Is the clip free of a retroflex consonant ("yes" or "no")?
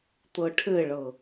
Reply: no